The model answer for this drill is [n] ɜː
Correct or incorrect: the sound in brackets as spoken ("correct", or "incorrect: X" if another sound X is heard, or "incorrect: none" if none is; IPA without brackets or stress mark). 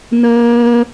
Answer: correct